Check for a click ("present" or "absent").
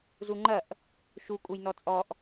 present